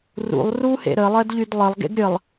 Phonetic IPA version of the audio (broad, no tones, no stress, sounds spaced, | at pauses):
r ṵ lˠ r u h ḛ ɾ ə lˠ ɜ d ʎ y d lˠ ə lˠ ɡ ḛ ɡ ɾʲ ə lˠ